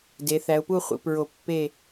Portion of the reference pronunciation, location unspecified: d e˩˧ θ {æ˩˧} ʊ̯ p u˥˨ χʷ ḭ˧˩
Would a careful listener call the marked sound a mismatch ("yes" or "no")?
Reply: no